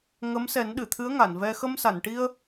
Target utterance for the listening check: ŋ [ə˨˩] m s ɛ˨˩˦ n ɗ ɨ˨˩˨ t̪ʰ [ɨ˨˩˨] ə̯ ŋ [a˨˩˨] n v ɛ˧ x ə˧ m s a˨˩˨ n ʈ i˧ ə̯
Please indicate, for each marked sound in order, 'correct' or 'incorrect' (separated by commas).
incorrect, incorrect, correct